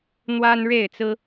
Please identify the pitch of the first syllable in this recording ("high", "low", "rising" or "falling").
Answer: high